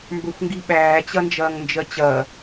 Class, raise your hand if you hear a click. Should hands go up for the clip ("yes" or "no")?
no